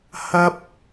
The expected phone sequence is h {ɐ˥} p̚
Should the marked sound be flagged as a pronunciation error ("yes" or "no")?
no